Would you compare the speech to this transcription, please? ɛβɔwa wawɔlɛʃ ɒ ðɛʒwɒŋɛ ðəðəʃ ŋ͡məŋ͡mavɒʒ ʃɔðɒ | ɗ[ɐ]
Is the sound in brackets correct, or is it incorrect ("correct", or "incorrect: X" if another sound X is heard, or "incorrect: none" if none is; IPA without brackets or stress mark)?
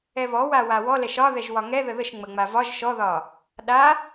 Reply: incorrect: a